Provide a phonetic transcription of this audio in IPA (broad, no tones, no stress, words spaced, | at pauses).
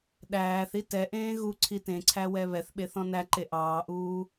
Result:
ɗæːθ itɛʔẽː ɣu ǀʰitẽǀʰæ wɛβɛθɓe θɔ̃næǃe ʔɑːʔuː